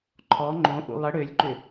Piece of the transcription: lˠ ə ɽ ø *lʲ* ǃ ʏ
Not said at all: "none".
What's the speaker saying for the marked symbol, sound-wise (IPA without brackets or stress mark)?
lʲ